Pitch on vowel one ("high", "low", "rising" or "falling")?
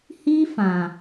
high